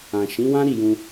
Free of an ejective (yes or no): yes